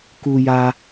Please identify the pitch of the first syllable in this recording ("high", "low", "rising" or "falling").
high